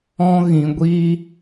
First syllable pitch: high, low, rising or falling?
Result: high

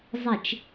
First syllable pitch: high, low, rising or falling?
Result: low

